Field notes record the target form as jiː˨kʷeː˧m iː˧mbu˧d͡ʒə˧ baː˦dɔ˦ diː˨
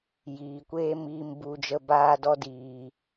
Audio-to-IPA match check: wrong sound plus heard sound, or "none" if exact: none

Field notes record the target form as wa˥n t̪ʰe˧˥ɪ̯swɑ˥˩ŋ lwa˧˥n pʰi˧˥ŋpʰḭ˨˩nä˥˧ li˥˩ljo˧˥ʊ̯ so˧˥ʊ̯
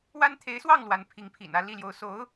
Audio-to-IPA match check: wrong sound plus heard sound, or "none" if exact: none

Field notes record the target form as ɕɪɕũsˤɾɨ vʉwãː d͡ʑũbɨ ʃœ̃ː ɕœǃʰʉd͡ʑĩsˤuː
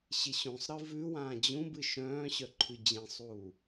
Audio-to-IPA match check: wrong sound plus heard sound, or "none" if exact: none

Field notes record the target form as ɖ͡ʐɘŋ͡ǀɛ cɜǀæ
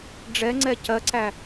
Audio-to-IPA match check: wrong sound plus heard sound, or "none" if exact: ɘ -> ɛ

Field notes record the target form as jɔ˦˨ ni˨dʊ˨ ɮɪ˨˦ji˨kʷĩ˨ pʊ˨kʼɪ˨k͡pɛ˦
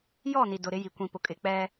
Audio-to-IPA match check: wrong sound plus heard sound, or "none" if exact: ɮ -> ɾ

